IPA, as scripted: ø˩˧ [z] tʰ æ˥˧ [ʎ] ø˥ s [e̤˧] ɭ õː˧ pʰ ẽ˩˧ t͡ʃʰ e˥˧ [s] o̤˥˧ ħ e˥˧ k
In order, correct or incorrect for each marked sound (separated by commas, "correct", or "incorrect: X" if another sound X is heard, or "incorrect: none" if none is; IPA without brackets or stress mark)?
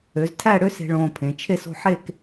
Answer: correct, incorrect: ɽ, correct, correct